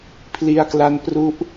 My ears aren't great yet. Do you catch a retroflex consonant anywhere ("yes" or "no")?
no